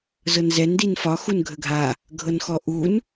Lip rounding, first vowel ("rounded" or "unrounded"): unrounded